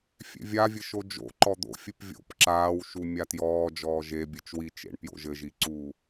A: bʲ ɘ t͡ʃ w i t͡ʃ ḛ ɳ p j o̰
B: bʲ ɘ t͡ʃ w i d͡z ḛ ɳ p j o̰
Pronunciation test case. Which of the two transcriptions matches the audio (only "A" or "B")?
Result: A